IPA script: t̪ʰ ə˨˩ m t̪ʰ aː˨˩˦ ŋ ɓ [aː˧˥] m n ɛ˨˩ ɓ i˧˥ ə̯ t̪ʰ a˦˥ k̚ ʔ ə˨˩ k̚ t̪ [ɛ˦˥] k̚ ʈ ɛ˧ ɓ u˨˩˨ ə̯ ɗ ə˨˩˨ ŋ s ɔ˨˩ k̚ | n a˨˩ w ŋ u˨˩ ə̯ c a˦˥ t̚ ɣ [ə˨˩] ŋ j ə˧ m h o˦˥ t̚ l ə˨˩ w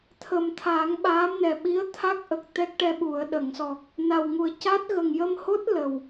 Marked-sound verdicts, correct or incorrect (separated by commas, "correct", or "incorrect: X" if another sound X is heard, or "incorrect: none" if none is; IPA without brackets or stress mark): correct, correct, correct